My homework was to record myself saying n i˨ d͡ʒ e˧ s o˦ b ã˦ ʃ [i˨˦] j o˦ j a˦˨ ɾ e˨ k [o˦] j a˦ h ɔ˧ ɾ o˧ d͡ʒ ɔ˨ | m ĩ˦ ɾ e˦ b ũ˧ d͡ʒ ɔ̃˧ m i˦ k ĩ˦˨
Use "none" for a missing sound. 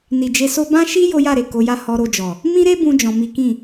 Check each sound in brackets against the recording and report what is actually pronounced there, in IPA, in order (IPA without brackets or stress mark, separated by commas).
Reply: i˦, o˨˦